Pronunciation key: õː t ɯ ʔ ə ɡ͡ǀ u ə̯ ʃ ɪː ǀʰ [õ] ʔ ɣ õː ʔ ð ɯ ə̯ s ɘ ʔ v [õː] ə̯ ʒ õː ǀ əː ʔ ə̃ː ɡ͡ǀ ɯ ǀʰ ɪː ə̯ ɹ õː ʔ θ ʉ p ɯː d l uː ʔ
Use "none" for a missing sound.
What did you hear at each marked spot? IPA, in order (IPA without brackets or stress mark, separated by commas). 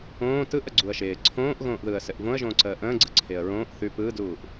õː, õ